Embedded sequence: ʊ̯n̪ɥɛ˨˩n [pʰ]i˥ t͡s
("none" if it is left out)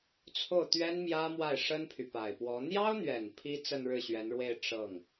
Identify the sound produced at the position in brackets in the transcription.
pʰ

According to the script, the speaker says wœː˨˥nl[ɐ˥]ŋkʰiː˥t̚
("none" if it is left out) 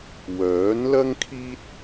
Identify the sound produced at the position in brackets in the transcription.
ɐ˥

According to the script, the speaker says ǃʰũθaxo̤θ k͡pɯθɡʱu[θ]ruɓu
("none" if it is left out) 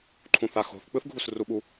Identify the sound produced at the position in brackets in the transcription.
s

